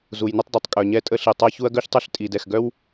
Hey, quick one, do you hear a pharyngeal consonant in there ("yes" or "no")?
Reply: no